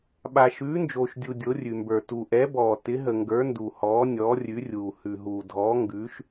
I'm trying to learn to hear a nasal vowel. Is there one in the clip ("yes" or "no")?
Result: no